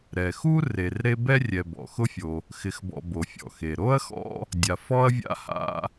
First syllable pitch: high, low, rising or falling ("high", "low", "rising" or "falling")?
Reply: low